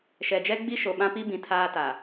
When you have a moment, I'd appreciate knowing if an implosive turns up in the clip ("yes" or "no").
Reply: yes